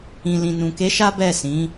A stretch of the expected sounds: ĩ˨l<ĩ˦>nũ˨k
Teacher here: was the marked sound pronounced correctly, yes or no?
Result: no